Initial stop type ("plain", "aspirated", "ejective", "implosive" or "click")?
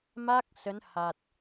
plain